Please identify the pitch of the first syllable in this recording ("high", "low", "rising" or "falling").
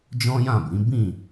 high